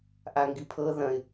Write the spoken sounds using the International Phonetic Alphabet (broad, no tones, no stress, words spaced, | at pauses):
ʔaŋɡipʰɤ ðɐ̃ɪ̯